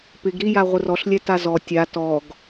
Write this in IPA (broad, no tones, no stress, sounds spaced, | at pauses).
p ɪ ɡ ɾ i j a ʁʷ ɪ r ɔ ɬ lʲ ɛ t a z ɔ tʲ a t ɔ ɡ